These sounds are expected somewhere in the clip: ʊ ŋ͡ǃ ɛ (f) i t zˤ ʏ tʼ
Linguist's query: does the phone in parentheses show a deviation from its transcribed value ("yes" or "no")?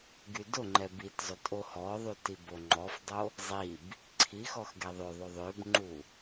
yes